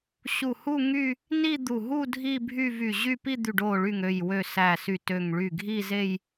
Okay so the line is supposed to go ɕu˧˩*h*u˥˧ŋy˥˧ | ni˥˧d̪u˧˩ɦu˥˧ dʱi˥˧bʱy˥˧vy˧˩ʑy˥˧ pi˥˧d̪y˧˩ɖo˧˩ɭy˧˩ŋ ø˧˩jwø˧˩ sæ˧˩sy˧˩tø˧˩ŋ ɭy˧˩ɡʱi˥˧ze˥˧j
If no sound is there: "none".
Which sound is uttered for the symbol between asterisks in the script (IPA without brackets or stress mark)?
h